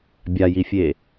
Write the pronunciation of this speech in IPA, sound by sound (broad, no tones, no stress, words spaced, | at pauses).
bʲajifʲe